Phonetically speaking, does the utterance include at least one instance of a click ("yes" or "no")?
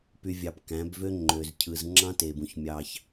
yes